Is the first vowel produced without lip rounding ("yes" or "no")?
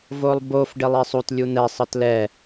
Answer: no